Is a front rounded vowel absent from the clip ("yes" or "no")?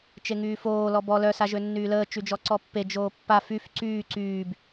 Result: no